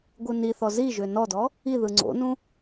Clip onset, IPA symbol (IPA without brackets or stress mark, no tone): ɡʷ